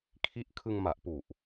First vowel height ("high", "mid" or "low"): high